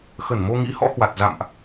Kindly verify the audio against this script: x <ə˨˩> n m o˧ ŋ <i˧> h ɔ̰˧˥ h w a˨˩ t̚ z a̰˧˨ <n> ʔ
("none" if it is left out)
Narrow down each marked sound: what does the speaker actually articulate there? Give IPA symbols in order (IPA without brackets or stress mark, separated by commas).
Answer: ə˧˩, ḭ˧˥, m